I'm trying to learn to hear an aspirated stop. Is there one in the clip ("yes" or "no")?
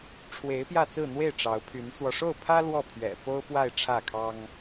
yes